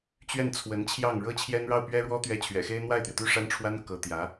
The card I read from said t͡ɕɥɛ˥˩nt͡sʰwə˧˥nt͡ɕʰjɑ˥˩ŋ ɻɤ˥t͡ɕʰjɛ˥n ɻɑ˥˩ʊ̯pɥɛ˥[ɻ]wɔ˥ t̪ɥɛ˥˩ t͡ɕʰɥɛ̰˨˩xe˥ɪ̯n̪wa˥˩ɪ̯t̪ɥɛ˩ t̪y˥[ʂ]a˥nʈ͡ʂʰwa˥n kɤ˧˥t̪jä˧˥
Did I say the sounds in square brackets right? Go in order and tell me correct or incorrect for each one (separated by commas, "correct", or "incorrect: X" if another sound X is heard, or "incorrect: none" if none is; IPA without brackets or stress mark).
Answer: correct, correct